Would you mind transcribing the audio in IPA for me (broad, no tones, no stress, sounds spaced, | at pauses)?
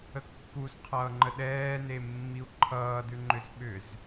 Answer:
ə kː u z qʰ ʌː ŋ͡ǃ ə ɗ ɛː n e mː i u̯ ǃʰ ʌː d ʉ ŋ͡ǃ ʏ z ɓ ʏ z